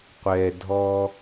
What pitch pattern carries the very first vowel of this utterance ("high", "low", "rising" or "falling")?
low